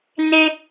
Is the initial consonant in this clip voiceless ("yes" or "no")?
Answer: no